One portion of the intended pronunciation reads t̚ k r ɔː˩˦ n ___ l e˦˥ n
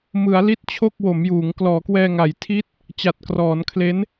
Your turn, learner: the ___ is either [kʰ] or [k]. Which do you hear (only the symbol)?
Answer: kʰ